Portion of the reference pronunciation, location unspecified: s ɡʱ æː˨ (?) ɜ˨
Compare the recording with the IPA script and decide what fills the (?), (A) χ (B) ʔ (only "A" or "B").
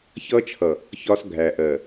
B